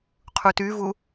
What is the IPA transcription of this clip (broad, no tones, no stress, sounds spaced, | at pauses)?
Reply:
qʰ u t y v u